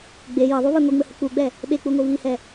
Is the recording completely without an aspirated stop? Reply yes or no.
yes